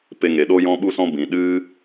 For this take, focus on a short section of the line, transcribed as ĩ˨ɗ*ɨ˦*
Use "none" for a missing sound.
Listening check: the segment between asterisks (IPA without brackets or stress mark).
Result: ɨ˦